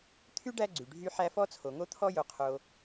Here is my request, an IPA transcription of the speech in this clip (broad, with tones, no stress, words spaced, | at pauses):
t̪ʰy˥ɖæ˦ ɡ͡ǀy˩ɖʱy˦ ħæ˦fɔ˥t͡sʰo˨ŋo˥ t̪ʰɔ˥jo˨qʰo˨